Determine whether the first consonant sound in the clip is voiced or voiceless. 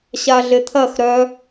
voiceless